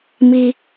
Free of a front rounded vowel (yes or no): yes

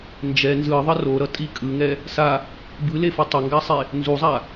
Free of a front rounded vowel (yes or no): yes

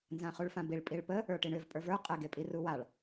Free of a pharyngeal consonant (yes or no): yes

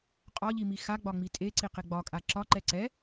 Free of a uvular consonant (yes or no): no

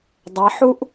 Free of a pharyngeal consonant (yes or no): no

